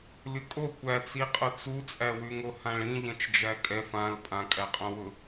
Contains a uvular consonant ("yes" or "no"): yes